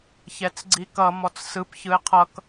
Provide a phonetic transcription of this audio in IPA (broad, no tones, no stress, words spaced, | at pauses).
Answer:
çɛt͡sɡ͡ǀikʌ mɔt͡ssɯp çɯe̯qʰʌk